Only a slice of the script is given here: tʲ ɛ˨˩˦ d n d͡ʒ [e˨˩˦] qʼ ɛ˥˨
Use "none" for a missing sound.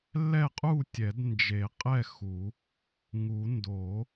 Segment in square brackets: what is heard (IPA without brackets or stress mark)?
e˨˩˦